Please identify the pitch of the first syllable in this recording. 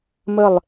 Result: falling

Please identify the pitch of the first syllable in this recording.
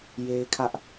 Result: high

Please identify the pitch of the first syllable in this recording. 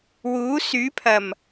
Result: rising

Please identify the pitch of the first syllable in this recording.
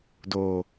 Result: low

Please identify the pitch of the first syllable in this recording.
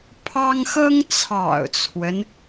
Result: high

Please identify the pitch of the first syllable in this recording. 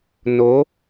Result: rising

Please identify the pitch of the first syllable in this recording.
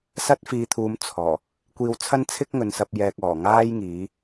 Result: high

